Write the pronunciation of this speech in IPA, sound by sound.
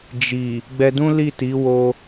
d͡ʒ i˨ | ɡ͡b ɛ˧ d ũ˦ l i˦˨ t i˨˦ w o˧

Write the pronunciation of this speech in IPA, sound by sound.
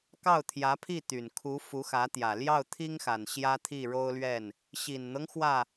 k ɑ˥˩ ʊ̯ t̪ʰ j ä˧˥ pʰ i˥˩ t̪ y˨˩ n kʰ u˧˥ f u˧˥ x ä˧˥ t̪ j ä˨˩ l j ɑ˥˩ ʊ̯ t̪ʰ i˥ ŋ x a˨˩ n ɕ j ä˥ t̪ʰ i˥˩ ɻ o˥ ʊ̯ l ɥ ɛ˥˩ n | ɕ i˨˩ n n̪ ɤ˦ ŋ x w ä˥˩

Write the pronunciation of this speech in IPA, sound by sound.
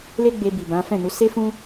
l e˦ ɡ͡b e˧ b i˨ b ã˨˦ f ɛ̃˦˨ n u˨˦ s e˦ f ũ˦

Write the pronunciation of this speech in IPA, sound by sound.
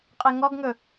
qʼ e ŋ ɔ ɡ ŋ ɵ

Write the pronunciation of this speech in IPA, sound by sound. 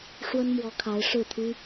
ʂ w ə˦ n m w ɔ˨˦ kʰ a˨˦ ɪ̯ ʂ ɻ̩˥˨ t̪ʰ y˦

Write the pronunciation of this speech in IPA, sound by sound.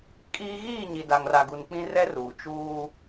kʼ iː˦ ɣ iː˦˨ ɲ i˨ d a˨ ŋ r a˨ ɡ u˨ n k͡p ĩ˦ r ɛ˦ r uː˨ t͡ʃ uː˦

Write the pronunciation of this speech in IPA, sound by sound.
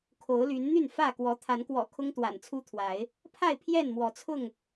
kʰ o˨˦ ʊ̯ l y˨˦ n n̪ y˥˨ n f ä˥˨ k w ɔ˨˦ t̪ʰ a˨˦ n k w ɔ̰˨˩ kʰ ʊ˦ ŋ t̪ w a̰˨˩ n t͡sʰ u˦ t̪ʰ w a˨˦ ɪ̯ | pʰ a˥˨ ɪ̯ pʰ j ɛ˥˨ n m w ɔ˨˦ t͡sʰ ʊ˥˨ ŋ

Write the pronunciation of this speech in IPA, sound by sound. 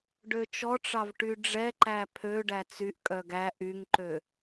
ɖ ø t͡ʃ ɔ ʈ͡ʂ ɑ v ʈ y ɖ͡ʐ ɛ ǃ æ pʰ ø ɖ æ t͡s y ʔ kʼ œ ɡ æ ʔ y ŋ ǃ ø

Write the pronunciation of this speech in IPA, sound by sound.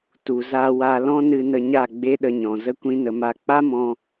t u˨ z a˧ w a˧ l ɔ̃˦ n ɨ˧ n ə˧ ɲ a˦˨ ɡ͡b e˦ ɗ ə˧ ɲ ɔ̃˨ z ə˦ kʷ ĩ˦ n ə˧ m a˦ k͡p a˦ m ɔ̃˧

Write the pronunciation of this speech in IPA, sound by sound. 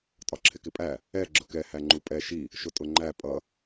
tʼ ɒ ǁʰ ɪ k ɪ pʼ æ | ɛ ɡ͡ǁ ʊ k ɛ h æ ŋ͡ǃ u pʼ ɛ ʃ i | ʃ ʊ tʼ ʊ ŋ͡ǃ æ pʼ ʌ

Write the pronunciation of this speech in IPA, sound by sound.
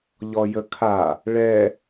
ʎ ɔ j ə kʰ a | ɭ ɛ

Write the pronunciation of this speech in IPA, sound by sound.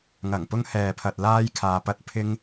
ŋ ɐ˨˩ ŋ p ʊ˧ ŋ h ɛː˨ pʰ ɐ˨ t̚ l aː˥ j kʰ aː˧ p ɐ˥ t̚ pʰ ɪ˧ ŋ

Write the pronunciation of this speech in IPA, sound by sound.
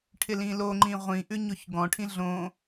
ʈʰ ɪ l ĩ l o ŋ͡ǃ ĩ ʁʷ ĩ ʔ ʉ ɲ o ç ɡ ɔ̃ ʈʰ ĩ ɮ õ

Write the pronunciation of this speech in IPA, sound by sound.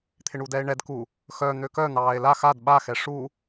t̪ʰ ɪ ɳ u d ɛ e̯ ɳ ɛ d k u | x œ n̪ ø k œ n̪ ɑː e̯ l a x a d ɓ a x ɛ ʂ u

